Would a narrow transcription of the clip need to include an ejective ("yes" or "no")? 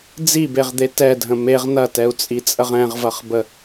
yes